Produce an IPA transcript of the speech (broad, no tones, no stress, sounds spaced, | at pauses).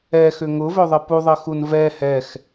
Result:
ɛ x ʏ ŋ ʊ v ø ðˤ ɘ p u ðˤ ɘ x u n v ɛ h ɛ x